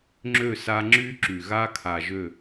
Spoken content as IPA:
ŋ͡ǁ ø˦˨ s a˦ ŋ͡ǁ y˦ ǁ y˨ ɣ a˦ kʰ a˨ ʒ ø˦˨

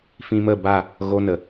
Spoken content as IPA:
f ĩ˧ m ə˦˨ b a˦˨ | ɣ o˦ n ə˨

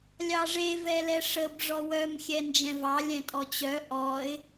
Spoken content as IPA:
lʲ ɑ ʐ e v ɛ l ɛ ʂ ə b ʐ ɔ w œ m xʲ ɛ n d͡ʒ ɛ̃ v ɑ lʲ ɛ̃ tʼ ɔ t͡ɕ œ ʔ ɔ ɪ̯

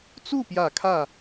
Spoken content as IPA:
t͡s u˥˩ p j ä˨˩ kʰ ä˥˩

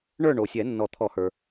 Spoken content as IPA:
ɳ ə˞˥˨ ɳ o˩ sʲ ɛ˨˩˦ nː ɔ˨˩˦ t̪ʰ ɔ˨˩˦ h ə˞˩

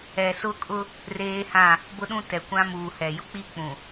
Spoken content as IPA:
ɛ˨ s ʊ˦ kʼ ʊ˦ | r eː˦ h ã˦˨ | b ʊ˦ ɗ ũ˦ t ɛ˨ kʷ ã˦ m uː˨ h ɛ˨ j ʊ˦ k͡p i˦ k͡p ũ˨

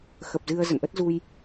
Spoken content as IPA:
x ə˨˩ p̚ z ɨ˧ ə̯ z ə̰˧˨ n ʔ ə˦˥ t̚ z u˧ j

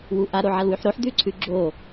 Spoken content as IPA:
w u ʔ a ɾ o ʕ a l w ʉ ħ ɾ o ħ d̪ ʉ ǀʰ ʉ ɡ͡ǁ o

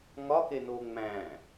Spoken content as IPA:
ŋ ɒ k e n o ŋ͡m æ̃

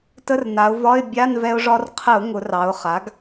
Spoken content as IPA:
t ə˧˥˧ r n a˩˧ ʊ̯ v ɒ˧˥˧ ɪ̯ bʲ a˧˥˧ n v ɛ˧ ʊ̯ ʐ ɒ˧ r qʰ ə˧˩˧ ʊ̯ ŋ ʊ˩˧ r ɑ˩˧ ʊ̯ χ a˩˥ ɡ

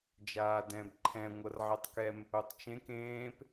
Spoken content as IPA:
d͡ʒ aː d ɛ̃ b ǃʰ ɛ̃ ŋʷ ɤ r ʕ e tˤ k ɛ m | o tˤ t͡ʃ ẽ k ẽː p

